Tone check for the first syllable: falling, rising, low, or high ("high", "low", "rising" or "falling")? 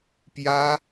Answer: high